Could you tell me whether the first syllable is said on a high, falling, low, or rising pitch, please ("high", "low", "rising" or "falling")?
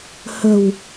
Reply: low